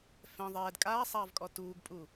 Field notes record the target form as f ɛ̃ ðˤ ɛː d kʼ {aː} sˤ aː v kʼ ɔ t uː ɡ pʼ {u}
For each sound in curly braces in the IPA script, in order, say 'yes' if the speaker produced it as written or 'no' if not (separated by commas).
yes, yes